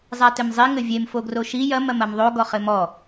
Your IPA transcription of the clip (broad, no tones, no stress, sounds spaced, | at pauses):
zˤ a t ɘ m zˤ i ŋ ɘ vʲ e m f o ɡ r o ʃ i j ɐ m ɐ m ɐ m ðˤ o ɡ ɔ χ ɘ m ɔ